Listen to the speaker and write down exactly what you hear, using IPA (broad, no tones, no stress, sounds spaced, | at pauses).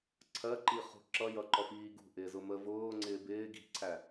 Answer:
ǀʰ ɜ ǃ i χ ṳ ǁ ʌ j ʌ ǃ ɔ f iː ɡ ṳ ʔ ɪː z ʊ m ə v ʊː ŋ͡ǀ ɪː b ɪː ɡ i̤ ǀʰ æ